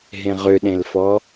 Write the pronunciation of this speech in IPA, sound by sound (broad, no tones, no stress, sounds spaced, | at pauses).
ɦ ẽ ʁ ʏ ɗ ẽ l f ɔ